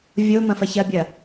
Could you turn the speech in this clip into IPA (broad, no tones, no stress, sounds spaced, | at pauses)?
vʲ o m ɐ̃ f ɐ ç ɐ bʲ ɐ